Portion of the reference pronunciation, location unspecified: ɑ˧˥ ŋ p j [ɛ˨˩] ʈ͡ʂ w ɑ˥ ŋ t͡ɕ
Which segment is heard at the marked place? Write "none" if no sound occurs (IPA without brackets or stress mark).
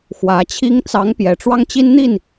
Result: ɛ˨˩